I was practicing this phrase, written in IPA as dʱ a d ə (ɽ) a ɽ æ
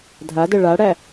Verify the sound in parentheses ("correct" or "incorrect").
incorrect